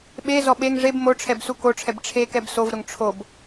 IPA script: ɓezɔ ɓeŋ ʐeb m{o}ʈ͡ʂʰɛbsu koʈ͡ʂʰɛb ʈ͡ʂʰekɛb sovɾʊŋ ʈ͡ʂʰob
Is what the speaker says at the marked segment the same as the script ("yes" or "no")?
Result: yes